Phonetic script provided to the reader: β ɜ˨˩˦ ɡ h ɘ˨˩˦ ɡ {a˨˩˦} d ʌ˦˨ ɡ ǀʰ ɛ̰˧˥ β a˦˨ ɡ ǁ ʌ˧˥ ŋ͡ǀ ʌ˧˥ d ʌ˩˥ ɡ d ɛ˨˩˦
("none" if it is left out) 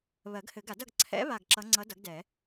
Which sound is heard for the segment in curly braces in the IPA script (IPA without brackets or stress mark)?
a˨˩˦